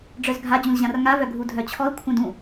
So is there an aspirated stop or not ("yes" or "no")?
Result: yes